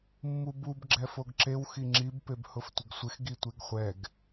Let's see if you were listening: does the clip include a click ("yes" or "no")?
yes